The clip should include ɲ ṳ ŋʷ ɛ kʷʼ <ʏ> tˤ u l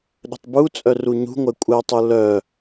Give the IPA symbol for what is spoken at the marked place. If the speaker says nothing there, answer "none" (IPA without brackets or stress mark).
ɛ